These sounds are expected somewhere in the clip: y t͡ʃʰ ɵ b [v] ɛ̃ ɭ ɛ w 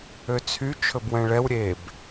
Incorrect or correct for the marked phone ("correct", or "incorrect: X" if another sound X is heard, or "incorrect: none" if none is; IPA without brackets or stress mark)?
incorrect: w